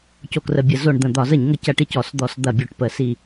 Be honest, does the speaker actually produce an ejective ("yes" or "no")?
no